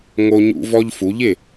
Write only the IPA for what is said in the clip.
ŋ o˧ ɲ ṵ˧ v ɔ˧ ʎ f u˩˧ ʎ ɪ˥˩

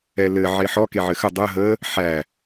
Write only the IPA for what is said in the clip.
ɛ l ɘ ʕ e ħ ɔ k e ʕ ɘ x ə dˤ ə ɦ ə | ħ æ

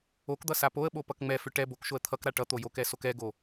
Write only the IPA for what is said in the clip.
o k d̪ ʌ s a p o ə̯ ɓ o p ʌ k ŋ͡m ɛ f ʏ ʈ ɛ b o k ʃ o ə̯ t̪ʰ ʌ k ɾ a ʈ ʌ t̪ o j o k ɛ s o k ɛ ɡ o

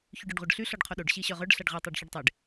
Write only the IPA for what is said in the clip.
ç y ɖ œ ɖ ʁʷ œ ɖ ɬ y ɬ ɔ ɖ qʰ o ɗ o ɖ ɕ i ɕ œ ʁ œ ɖ ɬ a ɖ ʁ e tˤ a ɖ ç u ɖ tˤ e ɖ

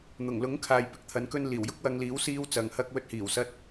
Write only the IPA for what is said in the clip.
n̪ ʊ˨˩ ŋ l ʊ˨˥ ŋ kʰ aː˨ j p ɪ˨˥ k̚ t̪ʰ ɐ˨˥ n k ɵ˥ n l iː˨˩ w j ʊ˥ k̚ w ɐ˧ ŋ l iː˨˥ w s iː˥ w t͡s ɐ˨˧ ŋ h ɐ˥ k̚ w ɵ˧ t̚ h iː˨˩ w s ɐ˧ t̚

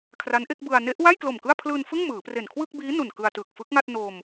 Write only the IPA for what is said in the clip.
kʰ r a˦˥ n ʔ e˥˩ k̚ b ɯ˧ a̯ n e˦˥ ʔ w a˥˩ j k l o˨˩ m k ɯ˥˩ a̯ pʰ l ɯː˧ n f ɯ˥˩ ŋ m ɯː˩˦ p r e˨˩ n kʰ w ɯ˥˩ k̚ b iː˦˥ n u˨˩ n k ɯ˧ a̯ t ɯː˨˩ k̚ f ɯ˦˥ k̚ ŋ a˥˩ t̚ n o˧ m

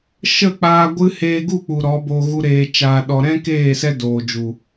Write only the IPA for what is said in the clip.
ʃ ə˦˨ k͡p aː˧ ɡʷ ɨ˦ h eː˧ ɡ u˦˨ k͡p u˨ ɾ ɔ˨˦ b o˧ ɣ u˦ ɾ eː˧ t͡ʃ aː˧ ɗ ɔ˧ ɾ ɛ̃˦ k eː˦˨ s ɛ˦ d oː˨ d͡ʒ u˨

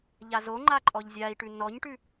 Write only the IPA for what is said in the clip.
ʎ a z o ŋ͡ǃ a ǃʼ ɔ ʎ zʲ a i̯ ʈ ʉ n ɔ ɲ ʈ ʉ

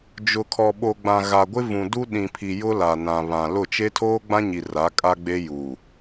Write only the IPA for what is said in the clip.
d͡ʒ ʊ˨ kʰ ɔ˨ ɓ o˨ ɡ͡b ã˨ ɣ a˨ ɡʷ ɪ˦ v ũ˨ d u˦ ɗ ĩ˨ pʰ i˨ j ʊ˦ l a˨ n ã˨ β ã˨ l ʊ˦˨ t͡ʃ e˦ tʰ oː˦ ɡ͡b ã˦ ɲ i˨ r a˨˦ kʼ a˦ ɡ͡b e˦ j uː˨

